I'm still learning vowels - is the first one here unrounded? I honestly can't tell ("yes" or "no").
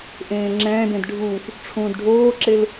yes